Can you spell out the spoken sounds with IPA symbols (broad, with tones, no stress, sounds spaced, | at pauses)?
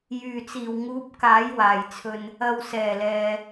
j yː˨˩ t͡s iː˨˩ w ŋ uː˨˥ p̚ k aː˨˥ j w aː˨˩ j t͡sʰ ɵ˧ n | ɐ˨ w s ɛː˨˩ l ɛː˨